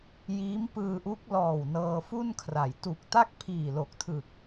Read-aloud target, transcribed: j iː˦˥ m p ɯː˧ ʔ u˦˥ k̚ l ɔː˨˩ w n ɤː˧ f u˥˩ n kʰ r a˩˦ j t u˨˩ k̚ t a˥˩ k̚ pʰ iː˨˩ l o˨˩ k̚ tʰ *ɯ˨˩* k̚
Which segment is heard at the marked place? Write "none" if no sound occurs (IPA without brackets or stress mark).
ɯ˨˩